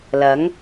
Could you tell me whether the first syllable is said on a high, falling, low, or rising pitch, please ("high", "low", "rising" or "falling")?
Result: rising